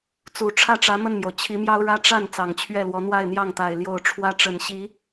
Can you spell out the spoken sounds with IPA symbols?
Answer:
t͡s u˨˩ ʈ͡ʂʰ ä˥˩ ʈ͡ʂ ä˧˥ m ə˥˩ n m j o˩ ʊ̯ t͡ɕʰ i˧˥ m j ɑ˥ ʊ̯ ɻ ä˥ ʈ͡ʂ a˥˩ n t͡s ɑ˨˩ ŋ t͡ɕʰ ɥ ɛ˥˩ l w ɔ˧˥ n̪ w a˥˧ ɪ̯ n̪ j ɑ˥˩ ŋ t̪ a˨˩ ɪ̯ l j o˥˩ ʊ̯ ʈ͡ʂʰ w ä˥ ʈ͡ʂ ə˨˩ n ɕ i˧˥

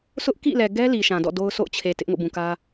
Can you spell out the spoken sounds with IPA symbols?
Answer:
s ʊ˦ ʔ k ḭ˦˨ l ɛ˨ ɡ ɛ˦ l i˨ ʃ ã˨ d ɔ̰˦˨ d o˦ ʊ̯ sʰ o̰˦˨ ʊ̯ t͡ɕʰ e˨ t ɪ˦ ʔ ŋ o̰˦˨ b ũ˨ k ä˦

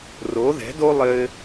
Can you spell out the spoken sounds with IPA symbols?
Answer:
r o˧˥ ð ɛ̤˧˥ d o˥ lˠ ɘ˥

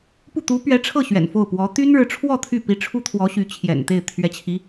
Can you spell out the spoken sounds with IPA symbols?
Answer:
p u˥˩ t̪ u˧˥ p ɥ ɛ˧˥ ʈ͡ʂʰ ɤ˥˩ ɕ ɥ ɛ̰˨˩ n f o˥˩ ʊ̯ p w ɔ˧˥ t̪ y˥ n ɻ ɻ̩˧˥ ʈ͡ʂʰ w ɔ˥˧ t̪ʰ y˥˩ p i˧˥ ʈ͡ʂʰ u˥ t̪ʰ w ɔ˧˥ ɕ y˧˥ t͡ɕʰ j ɛ̰˨˩ n t̪ e˥˩ ɪ̯ t̪ʰ ɥ ɛ˧˥ t͡ɕʰ i˧˥

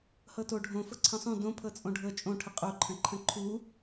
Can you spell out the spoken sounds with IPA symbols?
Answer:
h ɤ t o ɖʱ õ f ɤ ǀʰ ə̃ sˤ ũ d õ pʰ ɤ t͡sʼ õ ɖʱ ɤ t͡ʃʼ õ ʈʰ ə qʼ o ǃʰ ə̃ ǃʰ ə̃ ǃʰ u

